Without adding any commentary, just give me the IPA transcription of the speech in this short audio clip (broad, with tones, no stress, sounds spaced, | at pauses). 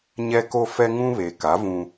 ɲ ɛ˦ k o˦ f ɛ˦ ŋ ũ˦ β e˨ k a˨˦ v ũ˦